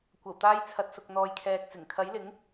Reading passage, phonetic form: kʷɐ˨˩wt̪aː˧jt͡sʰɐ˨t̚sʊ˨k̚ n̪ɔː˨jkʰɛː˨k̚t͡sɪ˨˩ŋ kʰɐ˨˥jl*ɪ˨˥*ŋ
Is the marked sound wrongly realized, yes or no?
no